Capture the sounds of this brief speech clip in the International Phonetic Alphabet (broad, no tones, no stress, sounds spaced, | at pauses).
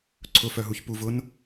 ǀʰ ʊ f œ ɦ u ç p u v ʊ n